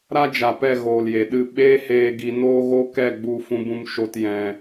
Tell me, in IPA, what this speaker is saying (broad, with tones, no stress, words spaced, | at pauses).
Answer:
ɾa˦d͡ʒa˨pɛ˦˨ ɣoː˨lje˨ɗɨ˦˨ ɓeː˦heː˧ɡi˧ noː˦ɣo˦ kɛ˦˨ɡ͡bu˦˨ fũ˦bũ˦m ʃo˦t jɛ̃˧